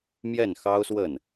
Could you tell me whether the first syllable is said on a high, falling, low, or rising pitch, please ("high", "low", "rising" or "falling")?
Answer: falling